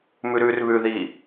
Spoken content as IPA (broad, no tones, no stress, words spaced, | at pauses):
mʉɾʉːrβʉðiː